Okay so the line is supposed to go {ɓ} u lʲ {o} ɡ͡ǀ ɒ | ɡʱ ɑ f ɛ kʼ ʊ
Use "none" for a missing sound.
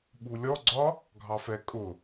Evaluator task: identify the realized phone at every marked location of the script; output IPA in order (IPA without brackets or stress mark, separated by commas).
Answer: ɓ, ɔ